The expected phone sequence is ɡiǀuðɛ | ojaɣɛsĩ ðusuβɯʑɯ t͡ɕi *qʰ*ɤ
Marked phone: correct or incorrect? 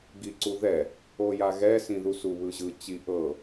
incorrect